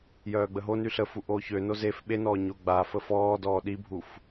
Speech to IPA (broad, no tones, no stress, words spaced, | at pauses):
jœːɡ͡bəɦony ɬəfu ʔoːçøno zef ɓenɔː ɲoɡ͡bafə fɔːdɔː ɗibʱuf